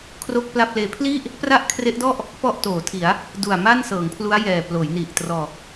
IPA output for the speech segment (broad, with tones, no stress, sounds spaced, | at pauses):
kʰ r o˥˩ k̚ p l a˥˩ p̚ l eː˦˥ pʰ l i˥˩ ʔ | p r a˥˩ ʔ kʰ r e˦˥ ʔ d ɔ˥˩ ʔ | p ɔ˥˩ ʔ t oː˩˦ tʰ i˩˦ a̯ | d u˨˩ a̯ m a˥˩ n s ɤː˩˦ ŋ pʰ l u˦˥ a̯ j ɛː˨˩ p l oː˩˦ j n i˨˩ ʔ t r ɔː˨˩ k̚